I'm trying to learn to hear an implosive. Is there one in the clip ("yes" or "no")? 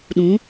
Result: yes